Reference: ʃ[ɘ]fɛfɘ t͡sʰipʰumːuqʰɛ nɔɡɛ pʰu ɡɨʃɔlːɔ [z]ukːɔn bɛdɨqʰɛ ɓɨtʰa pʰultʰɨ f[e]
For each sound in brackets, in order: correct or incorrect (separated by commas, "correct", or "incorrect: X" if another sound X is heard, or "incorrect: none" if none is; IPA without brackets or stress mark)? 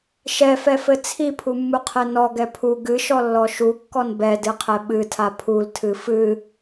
incorrect: ɛ, incorrect: ʃ, incorrect: ɨ